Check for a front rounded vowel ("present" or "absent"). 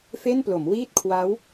absent